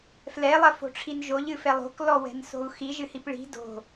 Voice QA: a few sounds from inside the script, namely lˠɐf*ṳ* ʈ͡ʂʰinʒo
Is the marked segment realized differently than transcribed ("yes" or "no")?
yes